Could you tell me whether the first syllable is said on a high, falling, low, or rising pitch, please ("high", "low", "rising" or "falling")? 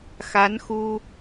rising